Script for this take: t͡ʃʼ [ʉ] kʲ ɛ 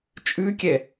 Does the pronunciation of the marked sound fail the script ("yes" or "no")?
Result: no